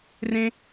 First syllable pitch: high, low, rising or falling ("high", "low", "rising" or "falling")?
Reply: high